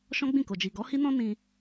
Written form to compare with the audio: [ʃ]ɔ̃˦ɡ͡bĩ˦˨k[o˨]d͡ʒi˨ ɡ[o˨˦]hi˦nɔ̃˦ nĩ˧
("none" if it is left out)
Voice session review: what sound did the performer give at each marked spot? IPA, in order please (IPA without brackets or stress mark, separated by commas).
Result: ʃ, o˨, ɔ˨˦